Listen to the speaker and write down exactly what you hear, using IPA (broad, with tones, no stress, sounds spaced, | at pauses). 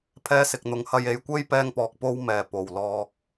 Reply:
pʰ ɛː˧ s ɪ˨ k̚ n̪ ʊ˨˧ ŋ h ɐ˧ j e˨˧ j kʷ e˥ j p ɛː˧ ŋ p ɔː˨ k̚ p o˧ w m ɛː˨˩ p o˨˩ w l ɔː˨ k̚